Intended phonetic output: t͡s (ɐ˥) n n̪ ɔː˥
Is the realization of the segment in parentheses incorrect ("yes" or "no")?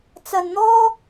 yes